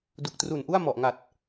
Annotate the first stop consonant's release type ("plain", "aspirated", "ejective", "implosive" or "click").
plain